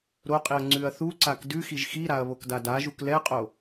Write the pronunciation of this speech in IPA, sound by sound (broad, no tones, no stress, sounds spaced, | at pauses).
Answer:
ɾ o qʼ i ɐ̯ ŋ͡ǀ ʉ ɐ̯ θ u ǀ a k d ʉ x i ʒ x i ɾ a ɐ̯ β o k d a d a ʒ u k l ɛ qʼ o